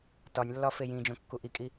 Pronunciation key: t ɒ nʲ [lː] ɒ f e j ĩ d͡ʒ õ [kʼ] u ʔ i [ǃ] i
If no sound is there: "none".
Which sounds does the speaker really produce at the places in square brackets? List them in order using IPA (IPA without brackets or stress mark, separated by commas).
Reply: lː, kː, kʼ